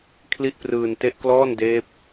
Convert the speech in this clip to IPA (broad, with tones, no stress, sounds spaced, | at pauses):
kʰ l i˦˥ ʔ p r ɯː˧ n t e˦˥ ʔ k l ɔː˥˩ n d eː˦˥ p̚